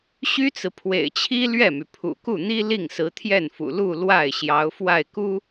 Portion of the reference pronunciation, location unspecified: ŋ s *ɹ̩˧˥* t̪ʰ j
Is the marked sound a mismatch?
no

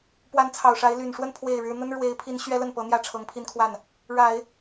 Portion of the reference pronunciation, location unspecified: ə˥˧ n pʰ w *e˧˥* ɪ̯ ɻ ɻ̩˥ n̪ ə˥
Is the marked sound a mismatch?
yes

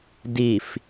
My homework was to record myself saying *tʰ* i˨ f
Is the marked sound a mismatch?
yes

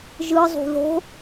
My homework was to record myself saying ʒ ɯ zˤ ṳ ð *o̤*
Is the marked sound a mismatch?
no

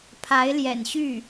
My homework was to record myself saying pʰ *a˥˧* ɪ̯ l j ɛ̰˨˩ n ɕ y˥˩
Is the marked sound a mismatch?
yes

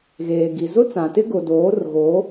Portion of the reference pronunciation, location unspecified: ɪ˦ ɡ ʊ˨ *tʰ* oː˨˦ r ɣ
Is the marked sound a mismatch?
yes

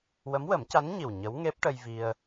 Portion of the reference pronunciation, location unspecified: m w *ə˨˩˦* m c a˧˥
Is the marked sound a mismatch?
no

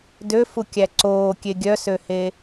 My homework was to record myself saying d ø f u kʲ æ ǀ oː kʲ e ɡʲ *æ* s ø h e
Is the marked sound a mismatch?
yes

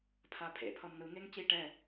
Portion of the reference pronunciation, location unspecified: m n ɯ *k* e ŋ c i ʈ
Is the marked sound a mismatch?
yes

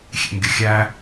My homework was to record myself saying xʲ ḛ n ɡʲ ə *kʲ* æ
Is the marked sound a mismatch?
yes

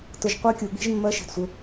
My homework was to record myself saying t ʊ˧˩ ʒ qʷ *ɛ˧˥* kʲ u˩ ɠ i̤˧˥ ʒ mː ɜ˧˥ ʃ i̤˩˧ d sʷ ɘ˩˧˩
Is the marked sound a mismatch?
yes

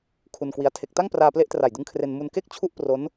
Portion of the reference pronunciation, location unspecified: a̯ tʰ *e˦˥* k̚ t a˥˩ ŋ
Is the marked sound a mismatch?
no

